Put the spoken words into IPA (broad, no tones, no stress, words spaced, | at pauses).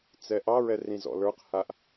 t͡sɛʔɑɹɛ rĩzɔ̰lə˞qhaʔ